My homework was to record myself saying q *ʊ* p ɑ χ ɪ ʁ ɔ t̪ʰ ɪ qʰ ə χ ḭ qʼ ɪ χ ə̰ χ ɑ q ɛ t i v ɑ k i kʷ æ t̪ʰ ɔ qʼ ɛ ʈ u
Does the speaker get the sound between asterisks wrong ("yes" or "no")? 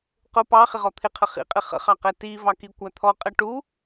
no